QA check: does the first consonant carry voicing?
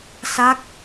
no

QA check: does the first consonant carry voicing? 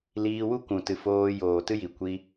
yes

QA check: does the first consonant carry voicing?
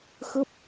no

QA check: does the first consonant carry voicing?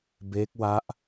yes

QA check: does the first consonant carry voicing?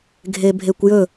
yes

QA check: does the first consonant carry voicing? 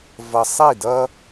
yes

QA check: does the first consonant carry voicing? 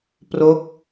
no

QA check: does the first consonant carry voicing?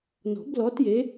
yes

